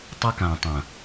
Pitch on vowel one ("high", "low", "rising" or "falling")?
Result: high